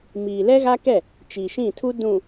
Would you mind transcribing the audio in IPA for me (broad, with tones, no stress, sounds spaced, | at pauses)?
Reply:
m iː˨ l ɛ˦ ɣ a˦ k ɛ˦˨ | t͡ʃ i˨ ʃ ĩ˦˨ tʰ u˦ d ũ˨